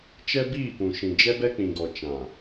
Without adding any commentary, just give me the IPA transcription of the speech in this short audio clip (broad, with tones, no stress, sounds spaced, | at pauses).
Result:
t͡ʃ ɛ˦ b iː˦˨ p ũ˨ ʃ ĩ˨ d͡ʒ ɛ˦ b ɛ˦ k͡p ĩ˨ ɡ ɔ˨ t͡ʃ ã˨